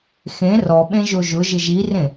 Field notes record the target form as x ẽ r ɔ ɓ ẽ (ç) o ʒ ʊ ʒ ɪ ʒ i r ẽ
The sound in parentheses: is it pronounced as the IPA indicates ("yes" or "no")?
no